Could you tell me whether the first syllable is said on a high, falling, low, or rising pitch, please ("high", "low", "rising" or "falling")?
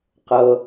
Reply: low